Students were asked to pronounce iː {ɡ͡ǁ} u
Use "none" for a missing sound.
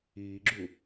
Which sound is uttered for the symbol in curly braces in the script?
ɡ͡ǁ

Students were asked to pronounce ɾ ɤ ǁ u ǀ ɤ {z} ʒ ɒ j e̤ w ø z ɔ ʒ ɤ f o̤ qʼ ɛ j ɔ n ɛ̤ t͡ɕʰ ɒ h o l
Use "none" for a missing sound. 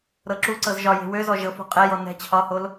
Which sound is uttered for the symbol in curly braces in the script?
z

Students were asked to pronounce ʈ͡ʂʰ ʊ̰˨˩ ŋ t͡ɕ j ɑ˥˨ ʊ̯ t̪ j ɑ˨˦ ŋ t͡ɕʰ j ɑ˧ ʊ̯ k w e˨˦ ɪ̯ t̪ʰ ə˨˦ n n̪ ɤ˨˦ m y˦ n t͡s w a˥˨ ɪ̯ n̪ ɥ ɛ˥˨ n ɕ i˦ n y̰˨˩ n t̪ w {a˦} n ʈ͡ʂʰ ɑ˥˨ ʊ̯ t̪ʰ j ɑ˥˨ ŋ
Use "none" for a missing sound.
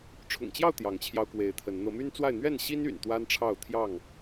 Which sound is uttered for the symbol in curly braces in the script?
a˦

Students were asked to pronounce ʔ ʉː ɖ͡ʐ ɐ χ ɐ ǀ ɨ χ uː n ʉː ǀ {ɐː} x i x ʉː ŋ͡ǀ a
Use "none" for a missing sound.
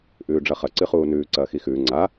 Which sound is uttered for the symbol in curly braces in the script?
ɐː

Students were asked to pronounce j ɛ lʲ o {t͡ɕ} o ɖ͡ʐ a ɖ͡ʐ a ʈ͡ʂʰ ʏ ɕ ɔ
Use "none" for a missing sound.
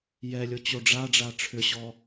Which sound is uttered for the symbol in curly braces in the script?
t͡ɕ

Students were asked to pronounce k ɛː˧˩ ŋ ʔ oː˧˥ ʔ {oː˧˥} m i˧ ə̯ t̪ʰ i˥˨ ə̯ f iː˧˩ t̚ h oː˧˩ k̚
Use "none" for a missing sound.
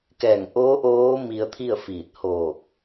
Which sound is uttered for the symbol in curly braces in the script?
oː˧˥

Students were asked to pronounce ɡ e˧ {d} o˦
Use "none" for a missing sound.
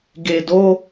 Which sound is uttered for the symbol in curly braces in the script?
d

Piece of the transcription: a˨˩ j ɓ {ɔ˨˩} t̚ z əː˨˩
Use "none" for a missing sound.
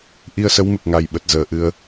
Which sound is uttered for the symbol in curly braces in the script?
ə˨˩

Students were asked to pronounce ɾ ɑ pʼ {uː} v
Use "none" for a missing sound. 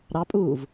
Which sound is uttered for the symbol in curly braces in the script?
uː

